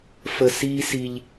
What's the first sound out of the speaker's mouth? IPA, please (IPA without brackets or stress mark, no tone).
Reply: f